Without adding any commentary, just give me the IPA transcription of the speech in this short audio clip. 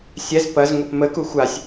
sʲ ɛ z p ɐ z ŋʷ ə p m ə k u xʷ a sʲ

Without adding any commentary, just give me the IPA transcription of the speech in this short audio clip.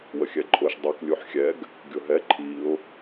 w ə xʲ ɛ ǃʼ ʊ ʃ dˤ ɛ k lʲ u ħ xʲ ɛ ɡ | ɡʲ ʊ ɦ ɛ ǃʰ i ʊ̯

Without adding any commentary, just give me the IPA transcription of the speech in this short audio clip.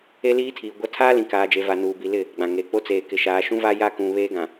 e˦ l iː˦ tʰ iː˨ ɡʷ a˦ tʰ aː˦ l ĩ˨ k aː˨ d͡ʒ e˨ v a˨ n uː˨ b i˨ l ɪ˦˨ | ɡ͡b ã˨ ŋ eː˨ k͡p o˦ t͡s eː˨ k ɪ˨ ʃ aː˨ ʃ ũ˦ v a˦ j a˦˨ k ũ˨ β eː˦ ɡ ã˨

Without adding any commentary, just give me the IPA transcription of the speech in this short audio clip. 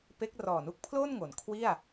p e˦˥ k̚ r ɔː˨˩ n u˦˥ k̚ pʰ l oː˥˩ n ŋ o˩˦ n kʰ w i˥˩ a̯

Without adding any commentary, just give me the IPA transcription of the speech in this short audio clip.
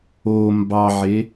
o m b ɑ ʕ e

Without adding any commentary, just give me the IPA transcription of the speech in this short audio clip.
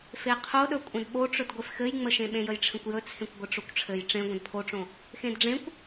f e qʰ o ɗ ɵ kʷʼ ə̃ d ɓ o ʈ͡ʂ ɵ d ɡʷ e f x ɘ j ŋ͡m ə ʃ ẽ ɓ ẽ j ə j ʈ͡ʂʰ ə̃ kʷ j ɵ t͡sʰ ẽ kʷ ɡʷ ɘ ʈ͡ʂ o kʷ ʈ͡ʂʰ ɘ j ʈ͡ʂ ẽ ɡʷ ə̃ d pʰ o ʈ͡ʂ õ | x ẽ d ɖ͡ʐ ẽ kʷ

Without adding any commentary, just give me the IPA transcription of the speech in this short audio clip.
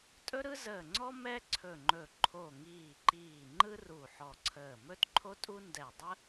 tʼ ɵ˥ ɾ ɯ˥ z əː˧˩ ŋ͡ǀ ɔ˥ m ɛ˥ ǀʰ ɵ˧˩ ŋ͡ǃ ɵ˧˩ ǃʰ o˧˩ ŋ iː˧˩ ǃ iː˧˩ ŋ͡ǃ ɯ˥ r u˧˩ ħ ɔ˧˩ ǀʰ əː˧˩ m ɵ˥ t ǃʰ o˥ tʼ u˥ n d ɛ˧˩ dˤ ə˥

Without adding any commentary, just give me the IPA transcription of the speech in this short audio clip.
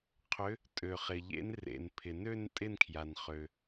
qʰ ʏ˨˦ | tʼ ø˩ χ ɪ˩ ʎ ḛ˨˦ n r ḛ˩ n pʰ ɪ˩ n ø˥˧ n tʼ ɪ˥˧ n kʰ j a˩ n χ ø˩

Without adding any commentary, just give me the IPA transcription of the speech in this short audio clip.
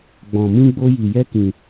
ɡ͡b ɔ̃˧ m ĩ˦ ɡ͡b o˦ j i˧ j ɛ˦ k ĩ˧

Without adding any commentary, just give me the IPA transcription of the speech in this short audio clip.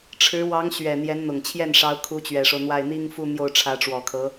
ʈ͡ʂʰ ɻ̩˧˥ w ɑ˧˥ ŋ ɕ ɥ ɛ˨˩ n̪ j ɛ˧˥ n n̪ ʊ˨˩ ŋ t͡ɕʰ j ɛ˥˩ n ʂ ɑ˧˥ ʊ̯ kʰ u˧˥ t͡ɕ ɥ ɛ˨˩ ʂ o˦ ʊ̯ n̪ w a˥˩ ɪ̯ n̪ i˥ ŋ f u˥˧ n̪ j o˥˩ ʊ̯ ʈ͡ʂʰ ä˧˥ ʈ͡ʂ w ɔ˨˩ kʰ ɤ˧˥

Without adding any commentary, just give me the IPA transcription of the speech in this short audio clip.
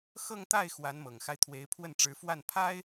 x ɤ˥˧ ŋ t̪ a˥˩ ɪ̯ x w a˧˥ n m ɤ˨˩ ŋ x a˦ ɪ̯ t̪ʰ w e˧˥ ɪ̯ pʰ w ə˥˩ n ʈ͡ʂ ɻ̩˧˥ f w a˥˩ n pʰ a˥ ɪ̯

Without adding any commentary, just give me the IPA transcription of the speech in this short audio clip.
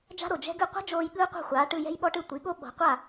d͡ʒ a̤˥ ɾ o˩ d͡ʒ ɛ̤˥ ɡ ɯ˥˩ qʷ ɛ̤˥ d͡ʒ oː˧ j ɠ ɯː˥ qʷ a̤˥˩ χʷ aː˩˥ ʈ ɯ˧ j ɛ̤˥ j ɓ ɔ˥ ʈ ɯ˥˩ tʷ i˩˥ ɠ o˥ ɓ ɔ̤˩˥ qʷ a˥˩

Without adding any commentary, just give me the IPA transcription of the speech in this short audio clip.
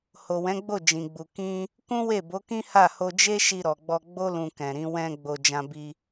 h o˨ w ɛ̃˨˦ ɡ͡b o˦˨ d͡ʒ ĩ˨ ɡ͡b u˨ k ĩ˧ | k ũ˦ w e˦˨ b o˨˦ k ĩ˦ h a˦˨ h o˧ d͡ʒ e˦ ʃ i˧ ɾ ɔ˨ ɡ͡b ɔ˧ ɡ͡b o˦ l ũ˧ k ɛ̃˨ ɾ ĩ˨˦ w ɛ̃˧ ɡ͡b o˧ d͡ʒ ã˧ b i˧

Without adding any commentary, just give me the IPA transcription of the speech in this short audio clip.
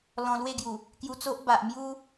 l ɔ̃˧ l w e˥˧ ɡ j u˨˩ | k j u˧ t͡s o˦ ʔ b a˨ ʔ m j u˦

